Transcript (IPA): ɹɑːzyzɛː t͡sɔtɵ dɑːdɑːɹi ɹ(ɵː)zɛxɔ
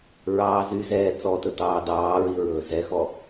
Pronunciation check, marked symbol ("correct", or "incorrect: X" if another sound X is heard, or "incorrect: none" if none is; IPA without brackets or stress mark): correct